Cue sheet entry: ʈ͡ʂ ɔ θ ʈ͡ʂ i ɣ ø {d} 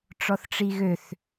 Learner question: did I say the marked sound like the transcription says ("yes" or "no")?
no